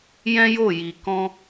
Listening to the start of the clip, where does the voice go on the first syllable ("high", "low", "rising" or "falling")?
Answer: high